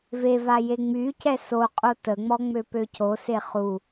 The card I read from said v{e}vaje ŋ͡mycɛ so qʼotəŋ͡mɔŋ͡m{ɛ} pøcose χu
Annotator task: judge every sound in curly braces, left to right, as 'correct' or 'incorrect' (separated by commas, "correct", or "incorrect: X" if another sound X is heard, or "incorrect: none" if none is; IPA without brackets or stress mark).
correct, incorrect: ø